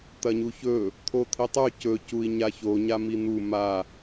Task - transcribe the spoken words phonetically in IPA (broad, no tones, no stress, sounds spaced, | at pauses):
t̪ ɐ ɲ u ç ɵ | t̪ʰ o t̪ʰ i tˤ ʉ c ɵ c u i̯ ɲ a ç o ɲ a m i n̪ u m a